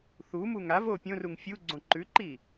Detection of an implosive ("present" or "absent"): absent